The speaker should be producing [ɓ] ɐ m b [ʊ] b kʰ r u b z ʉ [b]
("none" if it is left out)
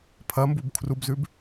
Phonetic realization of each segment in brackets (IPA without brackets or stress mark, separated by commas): pʰ, u, b